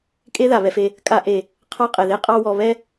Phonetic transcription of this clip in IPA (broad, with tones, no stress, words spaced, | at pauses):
kʼe˥ða˩βɛ˨fe˨ | kʼa˦ʔe˩ | qʰɑ˥qʼɛ˩ðe˥ qʼɑ˦wɔ˨ βɛ˥